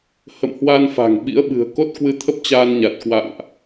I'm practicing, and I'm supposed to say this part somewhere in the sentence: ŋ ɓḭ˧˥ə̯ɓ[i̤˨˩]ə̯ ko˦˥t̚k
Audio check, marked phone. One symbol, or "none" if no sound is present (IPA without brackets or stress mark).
ɨ̤˨˩